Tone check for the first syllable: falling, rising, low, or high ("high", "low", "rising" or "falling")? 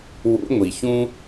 rising